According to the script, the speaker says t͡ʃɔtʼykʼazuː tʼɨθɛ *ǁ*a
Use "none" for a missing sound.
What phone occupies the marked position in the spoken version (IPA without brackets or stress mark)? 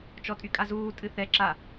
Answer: ǁ